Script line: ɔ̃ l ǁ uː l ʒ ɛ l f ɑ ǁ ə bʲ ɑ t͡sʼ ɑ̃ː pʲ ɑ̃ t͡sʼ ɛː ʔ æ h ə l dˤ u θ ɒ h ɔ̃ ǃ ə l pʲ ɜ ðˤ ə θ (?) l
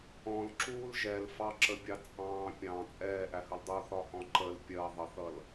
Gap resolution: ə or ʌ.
ʌ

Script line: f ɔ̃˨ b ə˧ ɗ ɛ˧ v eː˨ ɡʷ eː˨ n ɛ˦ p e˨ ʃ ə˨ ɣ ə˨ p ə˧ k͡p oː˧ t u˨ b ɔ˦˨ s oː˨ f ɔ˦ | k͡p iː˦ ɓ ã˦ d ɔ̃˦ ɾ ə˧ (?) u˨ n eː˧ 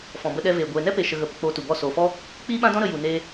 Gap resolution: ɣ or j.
j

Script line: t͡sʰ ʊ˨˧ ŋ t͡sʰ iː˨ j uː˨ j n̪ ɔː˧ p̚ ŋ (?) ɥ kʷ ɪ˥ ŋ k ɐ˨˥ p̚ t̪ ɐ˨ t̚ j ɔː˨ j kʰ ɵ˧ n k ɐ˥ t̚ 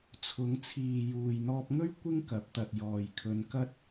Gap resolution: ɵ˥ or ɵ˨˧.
ɵ˥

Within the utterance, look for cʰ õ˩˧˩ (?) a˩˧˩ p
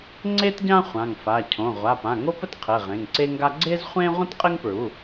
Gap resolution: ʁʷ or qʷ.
ʁʷ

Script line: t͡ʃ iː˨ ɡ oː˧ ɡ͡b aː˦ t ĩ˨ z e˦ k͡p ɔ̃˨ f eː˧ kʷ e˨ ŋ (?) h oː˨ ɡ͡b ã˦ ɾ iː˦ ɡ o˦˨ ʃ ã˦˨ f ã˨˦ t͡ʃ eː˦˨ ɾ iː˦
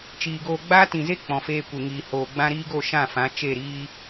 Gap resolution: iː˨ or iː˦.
iː˨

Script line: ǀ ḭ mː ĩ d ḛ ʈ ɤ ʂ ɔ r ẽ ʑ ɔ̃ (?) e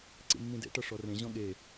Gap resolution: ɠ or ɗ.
ɠ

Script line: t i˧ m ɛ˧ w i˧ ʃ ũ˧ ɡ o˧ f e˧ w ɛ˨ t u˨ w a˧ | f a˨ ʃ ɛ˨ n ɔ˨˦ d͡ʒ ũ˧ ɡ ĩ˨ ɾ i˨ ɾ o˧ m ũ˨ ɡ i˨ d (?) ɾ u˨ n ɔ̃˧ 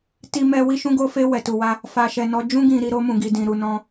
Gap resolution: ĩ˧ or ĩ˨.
ĩ˨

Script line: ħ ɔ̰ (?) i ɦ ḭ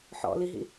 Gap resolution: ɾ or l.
l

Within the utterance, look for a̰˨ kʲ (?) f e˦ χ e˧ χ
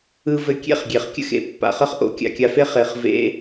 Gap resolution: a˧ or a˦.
a˧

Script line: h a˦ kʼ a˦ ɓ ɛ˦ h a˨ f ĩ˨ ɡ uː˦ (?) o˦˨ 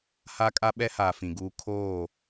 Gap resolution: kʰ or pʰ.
kʰ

